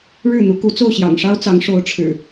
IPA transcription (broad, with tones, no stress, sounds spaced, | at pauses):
ɻ ɻ̩˥˨ n̪ u˨˦ k u˨˦ t͡s o˥˨ ʊ̯ ɕ j ɑ̰˨˩ ŋ ʂ ɑ˦ ʊ̯ t͡s ɑ˨˦ ŋ ʂ o˨˦ ʊ̯ ʈ͡ʂʰ ɻ̩˨˩